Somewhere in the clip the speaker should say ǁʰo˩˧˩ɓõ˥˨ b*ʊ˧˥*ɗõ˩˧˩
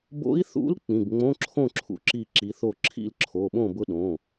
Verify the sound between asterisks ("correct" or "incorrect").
correct